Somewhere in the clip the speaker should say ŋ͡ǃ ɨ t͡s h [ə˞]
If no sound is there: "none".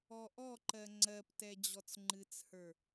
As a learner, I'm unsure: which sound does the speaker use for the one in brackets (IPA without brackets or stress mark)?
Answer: ə˞